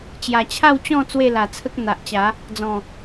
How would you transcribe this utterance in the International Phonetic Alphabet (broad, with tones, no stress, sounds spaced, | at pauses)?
t͡ɕ j a˨˩ t͡ɕʰ a˥˧ w t͡ɕ ɔ̃˥˧ t͡s w e˥˧ l a˨˩ t͡sʰ ə˦ k̚ n̪ a˨ ʔ t͡ɕ a˨˦ | d͡z ɔ̃˨˩